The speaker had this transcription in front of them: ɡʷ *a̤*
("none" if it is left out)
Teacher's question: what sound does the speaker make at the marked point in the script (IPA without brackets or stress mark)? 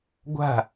a̤